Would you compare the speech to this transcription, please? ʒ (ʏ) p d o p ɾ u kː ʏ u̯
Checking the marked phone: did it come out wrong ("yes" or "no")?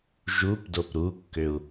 yes